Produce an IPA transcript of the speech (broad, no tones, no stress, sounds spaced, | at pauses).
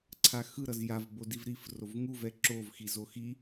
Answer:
ǀʰ a x ɯ ɾ ʌ z j a v b o d i v ɾ i f r o v ŋ u v ɛ ǁ o v x i z o x i